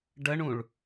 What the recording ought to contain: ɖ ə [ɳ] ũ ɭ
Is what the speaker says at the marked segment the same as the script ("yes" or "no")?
yes